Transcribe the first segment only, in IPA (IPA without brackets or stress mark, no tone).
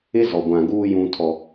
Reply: ɪ